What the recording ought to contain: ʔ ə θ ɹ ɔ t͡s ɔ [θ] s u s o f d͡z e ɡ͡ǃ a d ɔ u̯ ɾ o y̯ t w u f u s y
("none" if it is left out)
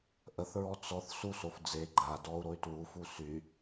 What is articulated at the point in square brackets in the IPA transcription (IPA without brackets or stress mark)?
θ